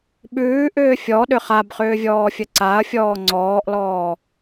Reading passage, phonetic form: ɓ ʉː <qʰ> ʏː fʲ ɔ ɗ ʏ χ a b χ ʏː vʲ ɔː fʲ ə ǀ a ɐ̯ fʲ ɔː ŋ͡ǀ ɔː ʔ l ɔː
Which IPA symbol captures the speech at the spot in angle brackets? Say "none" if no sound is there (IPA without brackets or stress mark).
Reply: ʔ